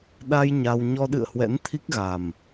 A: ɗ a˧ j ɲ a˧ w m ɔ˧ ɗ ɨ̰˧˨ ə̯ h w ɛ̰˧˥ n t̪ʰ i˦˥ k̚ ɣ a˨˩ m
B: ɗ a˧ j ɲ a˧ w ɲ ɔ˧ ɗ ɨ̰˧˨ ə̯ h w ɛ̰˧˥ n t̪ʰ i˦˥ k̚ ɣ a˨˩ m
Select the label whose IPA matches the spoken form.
B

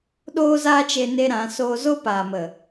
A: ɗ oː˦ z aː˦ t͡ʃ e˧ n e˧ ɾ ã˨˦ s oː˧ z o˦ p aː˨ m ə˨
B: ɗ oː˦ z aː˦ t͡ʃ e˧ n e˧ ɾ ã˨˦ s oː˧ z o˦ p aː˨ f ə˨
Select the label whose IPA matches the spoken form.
A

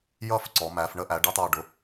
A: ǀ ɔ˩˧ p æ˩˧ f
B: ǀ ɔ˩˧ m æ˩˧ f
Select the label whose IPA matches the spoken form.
B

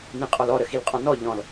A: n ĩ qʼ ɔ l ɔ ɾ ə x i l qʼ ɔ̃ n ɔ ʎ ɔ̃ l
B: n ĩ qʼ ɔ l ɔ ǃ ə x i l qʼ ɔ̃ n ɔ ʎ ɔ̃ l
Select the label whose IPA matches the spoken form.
A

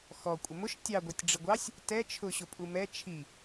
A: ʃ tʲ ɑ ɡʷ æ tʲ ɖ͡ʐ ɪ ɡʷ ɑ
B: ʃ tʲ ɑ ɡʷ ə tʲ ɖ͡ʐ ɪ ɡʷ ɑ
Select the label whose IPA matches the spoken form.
A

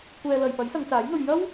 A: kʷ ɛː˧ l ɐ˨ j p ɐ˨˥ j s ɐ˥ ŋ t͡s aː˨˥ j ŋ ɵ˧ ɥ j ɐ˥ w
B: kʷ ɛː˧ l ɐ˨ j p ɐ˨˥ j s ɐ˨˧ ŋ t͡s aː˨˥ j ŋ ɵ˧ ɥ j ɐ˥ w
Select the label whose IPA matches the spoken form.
B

